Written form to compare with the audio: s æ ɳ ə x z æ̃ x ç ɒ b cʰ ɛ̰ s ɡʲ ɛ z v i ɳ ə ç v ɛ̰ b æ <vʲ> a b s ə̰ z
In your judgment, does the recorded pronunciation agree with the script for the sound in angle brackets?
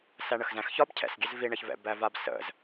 no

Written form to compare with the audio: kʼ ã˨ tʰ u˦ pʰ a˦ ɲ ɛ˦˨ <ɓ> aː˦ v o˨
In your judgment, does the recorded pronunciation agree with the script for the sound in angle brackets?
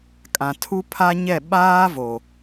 yes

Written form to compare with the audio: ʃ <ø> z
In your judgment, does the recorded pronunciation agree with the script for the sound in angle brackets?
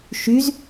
no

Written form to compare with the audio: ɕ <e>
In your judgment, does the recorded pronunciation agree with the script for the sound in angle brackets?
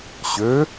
no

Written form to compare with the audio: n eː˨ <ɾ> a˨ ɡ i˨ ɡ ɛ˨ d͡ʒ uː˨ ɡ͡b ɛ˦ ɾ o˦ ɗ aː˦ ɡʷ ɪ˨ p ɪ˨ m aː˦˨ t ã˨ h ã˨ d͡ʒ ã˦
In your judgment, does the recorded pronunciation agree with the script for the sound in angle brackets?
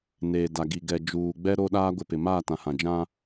no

